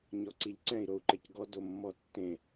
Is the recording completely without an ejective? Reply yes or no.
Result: yes